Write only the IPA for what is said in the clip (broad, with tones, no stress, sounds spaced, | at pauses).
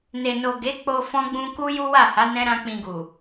n e˨ n o˨ ɡ e˨˦ k͡p o˧ f ɔ̃˦ ɡ͡b ũ˦ k u˦ j u˦ w a˦˨ h a˨˦ n ɛ̃˦ ɾ ã˦ k͡p ĩ˧ ɡ u˨